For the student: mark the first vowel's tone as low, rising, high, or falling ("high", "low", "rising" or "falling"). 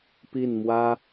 falling